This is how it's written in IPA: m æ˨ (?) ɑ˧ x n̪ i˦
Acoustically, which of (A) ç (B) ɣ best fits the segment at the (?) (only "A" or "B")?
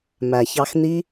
A